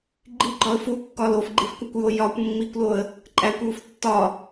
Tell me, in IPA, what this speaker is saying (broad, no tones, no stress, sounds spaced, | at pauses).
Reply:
ɡ͡ǃ i ɡ͡ǃ ɒ ə̯ f u kː ɒ l o f ɡ͡ǃ i f kʷ æ kʷ j o j ɒ kʷ mː i kʷ l o ə̯ | ǃʼ æ kʷ j u f tː ɒ